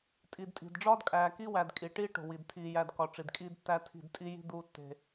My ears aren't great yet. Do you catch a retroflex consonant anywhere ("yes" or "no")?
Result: yes